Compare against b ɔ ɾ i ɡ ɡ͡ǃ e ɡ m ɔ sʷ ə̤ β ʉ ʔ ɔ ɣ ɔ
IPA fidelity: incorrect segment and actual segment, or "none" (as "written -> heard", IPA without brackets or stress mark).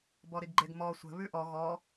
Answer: none